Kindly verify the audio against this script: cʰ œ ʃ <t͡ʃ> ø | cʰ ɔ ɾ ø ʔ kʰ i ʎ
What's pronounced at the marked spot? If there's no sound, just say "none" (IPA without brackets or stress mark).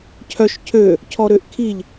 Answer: cʰ